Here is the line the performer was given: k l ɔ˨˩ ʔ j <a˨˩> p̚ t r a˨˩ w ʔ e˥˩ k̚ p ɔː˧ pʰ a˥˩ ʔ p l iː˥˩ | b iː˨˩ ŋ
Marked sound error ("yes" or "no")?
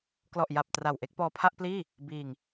no